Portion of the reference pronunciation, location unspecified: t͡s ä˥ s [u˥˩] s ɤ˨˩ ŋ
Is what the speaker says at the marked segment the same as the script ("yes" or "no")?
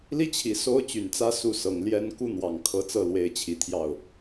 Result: yes